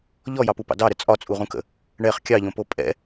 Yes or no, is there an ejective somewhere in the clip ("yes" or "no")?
yes